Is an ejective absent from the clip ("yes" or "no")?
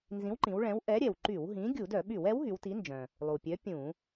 yes